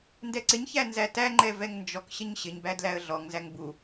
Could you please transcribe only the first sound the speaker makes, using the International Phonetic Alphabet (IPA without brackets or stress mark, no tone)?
n